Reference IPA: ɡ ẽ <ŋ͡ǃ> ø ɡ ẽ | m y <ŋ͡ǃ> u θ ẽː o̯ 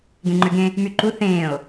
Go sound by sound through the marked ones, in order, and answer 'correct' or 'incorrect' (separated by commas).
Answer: correct, incorrect